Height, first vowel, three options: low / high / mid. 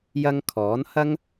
low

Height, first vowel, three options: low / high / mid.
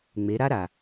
mid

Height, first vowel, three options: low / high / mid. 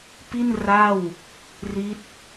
high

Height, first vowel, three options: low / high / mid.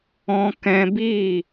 mid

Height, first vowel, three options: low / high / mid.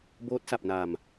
mid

